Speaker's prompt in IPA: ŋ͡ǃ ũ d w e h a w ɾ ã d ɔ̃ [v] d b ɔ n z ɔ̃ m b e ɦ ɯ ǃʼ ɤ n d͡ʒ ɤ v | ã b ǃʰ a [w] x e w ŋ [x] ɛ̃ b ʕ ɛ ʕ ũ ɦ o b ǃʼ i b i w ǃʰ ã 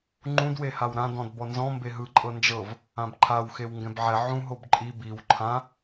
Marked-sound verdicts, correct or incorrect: incorrect: none, correct, incorrect: ɡ

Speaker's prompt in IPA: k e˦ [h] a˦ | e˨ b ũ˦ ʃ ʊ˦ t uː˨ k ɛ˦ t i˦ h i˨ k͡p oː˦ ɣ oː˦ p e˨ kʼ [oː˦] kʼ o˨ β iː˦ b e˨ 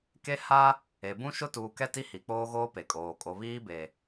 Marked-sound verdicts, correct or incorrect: correct, incorrect: oː˨

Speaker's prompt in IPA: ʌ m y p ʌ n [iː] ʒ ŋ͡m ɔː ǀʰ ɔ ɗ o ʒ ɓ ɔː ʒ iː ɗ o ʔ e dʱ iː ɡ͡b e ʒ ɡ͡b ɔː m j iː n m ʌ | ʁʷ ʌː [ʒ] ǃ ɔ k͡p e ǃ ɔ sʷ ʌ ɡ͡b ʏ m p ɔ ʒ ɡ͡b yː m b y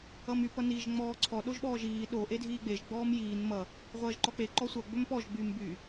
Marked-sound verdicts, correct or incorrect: correct, correct

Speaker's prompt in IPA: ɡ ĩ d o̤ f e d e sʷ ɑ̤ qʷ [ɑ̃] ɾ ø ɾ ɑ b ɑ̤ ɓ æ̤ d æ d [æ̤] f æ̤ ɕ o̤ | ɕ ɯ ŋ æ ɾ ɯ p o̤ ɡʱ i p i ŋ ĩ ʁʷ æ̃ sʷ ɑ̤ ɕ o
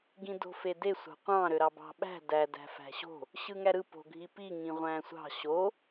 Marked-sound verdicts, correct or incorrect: correct, correct

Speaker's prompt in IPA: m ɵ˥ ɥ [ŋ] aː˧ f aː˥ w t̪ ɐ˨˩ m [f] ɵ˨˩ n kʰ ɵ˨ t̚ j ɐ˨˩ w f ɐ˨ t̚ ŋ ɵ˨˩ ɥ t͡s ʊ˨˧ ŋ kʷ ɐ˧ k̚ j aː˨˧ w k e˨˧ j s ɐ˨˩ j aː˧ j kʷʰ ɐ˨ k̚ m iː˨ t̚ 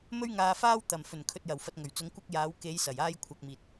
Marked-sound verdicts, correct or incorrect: correct, correct

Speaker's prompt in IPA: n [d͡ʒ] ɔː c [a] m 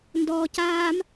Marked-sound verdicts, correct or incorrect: incorrect: d, incorrect: aː

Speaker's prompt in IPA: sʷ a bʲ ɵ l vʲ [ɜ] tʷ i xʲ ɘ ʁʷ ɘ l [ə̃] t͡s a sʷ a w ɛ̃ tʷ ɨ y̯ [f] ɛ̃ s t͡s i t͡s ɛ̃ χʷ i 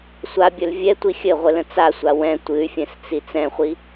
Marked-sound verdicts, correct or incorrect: incorrect: ɛ, correct, incorrect: fʲ

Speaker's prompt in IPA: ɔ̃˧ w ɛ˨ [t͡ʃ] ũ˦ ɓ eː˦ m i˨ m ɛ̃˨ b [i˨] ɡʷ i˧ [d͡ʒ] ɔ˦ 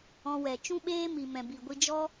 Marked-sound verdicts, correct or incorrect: correct, correct, correct

